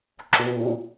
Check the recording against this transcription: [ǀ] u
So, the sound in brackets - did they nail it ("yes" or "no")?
no